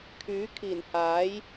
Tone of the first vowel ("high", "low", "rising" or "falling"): rising